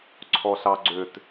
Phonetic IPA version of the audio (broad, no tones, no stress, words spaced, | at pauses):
ǀʰɔɬɑɡ͡ǀøt